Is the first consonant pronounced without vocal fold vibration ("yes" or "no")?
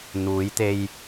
no